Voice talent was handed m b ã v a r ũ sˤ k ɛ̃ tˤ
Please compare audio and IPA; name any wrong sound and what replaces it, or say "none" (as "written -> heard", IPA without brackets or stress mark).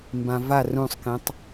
none